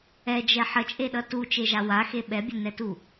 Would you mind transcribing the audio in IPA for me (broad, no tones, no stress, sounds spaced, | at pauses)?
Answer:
ɛ d͡ʒ ɛ ħ ə t͡ʃʼ e ɗ ʌ t u t͡ʃ e ʒ a w a x e ɓ ɛ bʲ ə n ɛ t u